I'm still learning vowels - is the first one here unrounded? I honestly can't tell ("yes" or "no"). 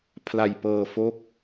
yes